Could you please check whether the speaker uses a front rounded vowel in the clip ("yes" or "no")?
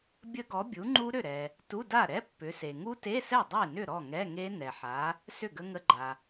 yes